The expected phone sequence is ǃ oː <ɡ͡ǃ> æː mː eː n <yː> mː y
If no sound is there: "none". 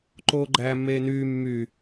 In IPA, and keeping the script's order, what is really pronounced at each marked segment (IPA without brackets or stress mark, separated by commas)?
ɡ͡ǃ, yː